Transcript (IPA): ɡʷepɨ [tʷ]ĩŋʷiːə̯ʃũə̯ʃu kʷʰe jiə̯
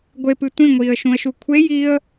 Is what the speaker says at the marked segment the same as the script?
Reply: yes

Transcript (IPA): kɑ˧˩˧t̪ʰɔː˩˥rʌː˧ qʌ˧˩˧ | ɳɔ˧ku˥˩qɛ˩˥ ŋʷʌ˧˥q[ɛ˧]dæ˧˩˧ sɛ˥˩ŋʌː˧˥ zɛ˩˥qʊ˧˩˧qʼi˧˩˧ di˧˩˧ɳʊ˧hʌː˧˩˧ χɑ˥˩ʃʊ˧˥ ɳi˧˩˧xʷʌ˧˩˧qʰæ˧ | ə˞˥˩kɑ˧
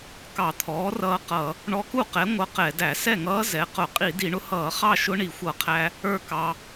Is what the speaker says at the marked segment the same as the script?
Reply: no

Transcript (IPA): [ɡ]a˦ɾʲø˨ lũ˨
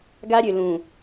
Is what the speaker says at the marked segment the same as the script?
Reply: yes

